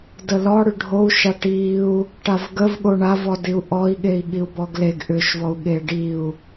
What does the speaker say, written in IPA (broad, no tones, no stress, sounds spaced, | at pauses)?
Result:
d ə l ɔ ɽ ʏ ɖʱ o u̯ ʃ a ʈ i u̯ | ʈ a v ɡ ə v ɠ o ɳ a v ɔ d i u̯ ʔ ɔ i̯ ɠ e i̯ ɠ i u̯ b ɔ ɡ l e ɡ ʔ ʏ ʃ v ɔ u̯ ɠ e ɖ i u̯